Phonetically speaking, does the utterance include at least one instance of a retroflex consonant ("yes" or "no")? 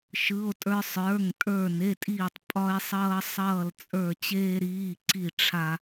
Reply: yes